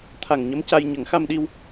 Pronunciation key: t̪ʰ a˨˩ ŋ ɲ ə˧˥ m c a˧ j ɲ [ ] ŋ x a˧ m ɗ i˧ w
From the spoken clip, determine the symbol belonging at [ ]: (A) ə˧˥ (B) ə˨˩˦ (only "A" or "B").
B